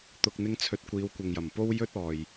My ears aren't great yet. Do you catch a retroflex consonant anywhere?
no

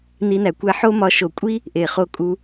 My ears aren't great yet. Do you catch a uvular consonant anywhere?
yes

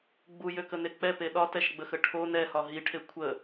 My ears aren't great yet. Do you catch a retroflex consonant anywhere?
yes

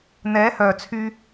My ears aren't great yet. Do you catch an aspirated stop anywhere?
yes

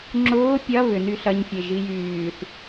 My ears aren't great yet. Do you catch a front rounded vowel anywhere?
yes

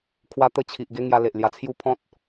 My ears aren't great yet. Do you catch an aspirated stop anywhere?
yes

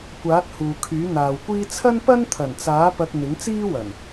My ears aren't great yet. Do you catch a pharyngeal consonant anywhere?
no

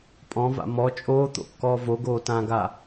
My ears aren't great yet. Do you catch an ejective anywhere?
yes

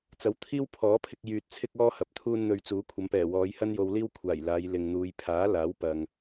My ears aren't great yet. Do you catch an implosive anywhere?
no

